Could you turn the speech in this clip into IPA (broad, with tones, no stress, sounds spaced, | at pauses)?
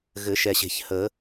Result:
ɣ ɘ˨˩˦ ʃ ɛ˨ ɕ e̤˨ ç h ə˨˩˦